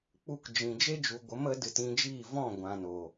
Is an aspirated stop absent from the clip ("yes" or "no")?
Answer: yes